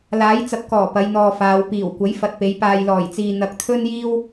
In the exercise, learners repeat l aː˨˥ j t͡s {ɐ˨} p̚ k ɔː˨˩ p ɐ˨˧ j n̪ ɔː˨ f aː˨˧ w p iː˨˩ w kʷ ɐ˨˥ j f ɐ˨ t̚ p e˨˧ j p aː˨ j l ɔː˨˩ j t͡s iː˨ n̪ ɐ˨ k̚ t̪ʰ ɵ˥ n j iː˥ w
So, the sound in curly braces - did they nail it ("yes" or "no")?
yes